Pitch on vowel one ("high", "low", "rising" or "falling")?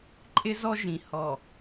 high